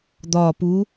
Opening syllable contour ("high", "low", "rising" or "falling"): low